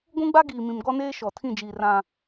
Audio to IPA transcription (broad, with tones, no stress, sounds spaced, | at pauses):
ɡʷ ũ˦ ɡ͡b a˦ ɡ iː˨ m ĩ˨ m ɡ ɔ˦ n eː˦ ʃ ɔ˨ tʰ ĩ˦˨ d͡ʒ iː˨ r ã˨